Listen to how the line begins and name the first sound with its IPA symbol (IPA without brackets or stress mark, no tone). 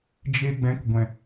d͡ʒ